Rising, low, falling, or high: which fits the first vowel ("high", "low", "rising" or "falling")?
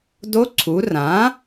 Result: rising